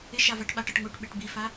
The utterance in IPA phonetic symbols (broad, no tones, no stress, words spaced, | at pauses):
ɪʃavaʈ ɓaʈɤʈ ŋoʈɓeʈ bifa